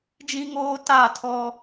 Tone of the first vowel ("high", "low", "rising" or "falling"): high